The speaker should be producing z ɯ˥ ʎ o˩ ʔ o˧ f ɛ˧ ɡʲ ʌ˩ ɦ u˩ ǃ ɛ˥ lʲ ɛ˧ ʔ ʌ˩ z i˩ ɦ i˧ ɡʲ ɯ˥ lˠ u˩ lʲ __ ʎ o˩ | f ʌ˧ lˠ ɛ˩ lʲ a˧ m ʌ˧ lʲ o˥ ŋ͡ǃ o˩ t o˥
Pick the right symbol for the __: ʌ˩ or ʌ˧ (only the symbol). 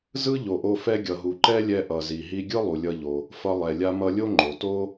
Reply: ʌ˧